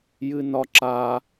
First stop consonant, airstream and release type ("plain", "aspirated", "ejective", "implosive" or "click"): click